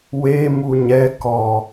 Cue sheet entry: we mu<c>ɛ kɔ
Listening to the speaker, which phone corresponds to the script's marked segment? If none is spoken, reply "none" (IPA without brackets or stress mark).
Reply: ɲ